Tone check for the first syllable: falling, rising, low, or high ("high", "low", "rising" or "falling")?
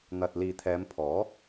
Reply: low